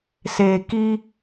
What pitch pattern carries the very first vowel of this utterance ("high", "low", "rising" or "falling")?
low